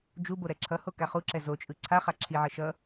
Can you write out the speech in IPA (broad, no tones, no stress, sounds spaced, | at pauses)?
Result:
d͡ʒ u b o ɾ ɛ ǁʰ ʌ h o k a χ u ǁ ɛ z o t͡ʃʼ ɯ ǀʰ a χ a ǁʰ i ʕ ʌ ʃ ʌ